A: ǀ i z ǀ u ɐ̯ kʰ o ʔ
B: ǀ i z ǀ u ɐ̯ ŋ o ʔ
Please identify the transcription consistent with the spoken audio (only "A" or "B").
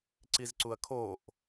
A